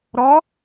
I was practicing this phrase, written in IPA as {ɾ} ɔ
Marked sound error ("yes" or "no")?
no